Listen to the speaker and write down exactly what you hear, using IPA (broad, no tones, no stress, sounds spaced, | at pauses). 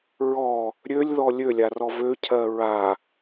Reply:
ɹ ɔ | ɾʲ ø lʲ ð ɔ lʲ ø lʲ a r ɔ v ø cʰ ɜ ɹ a